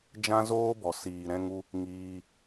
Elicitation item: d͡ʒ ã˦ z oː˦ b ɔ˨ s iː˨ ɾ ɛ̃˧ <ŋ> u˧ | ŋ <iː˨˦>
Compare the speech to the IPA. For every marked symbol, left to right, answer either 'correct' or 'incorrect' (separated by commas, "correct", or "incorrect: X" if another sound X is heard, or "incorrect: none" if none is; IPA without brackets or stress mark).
correct, incorrect: iː˧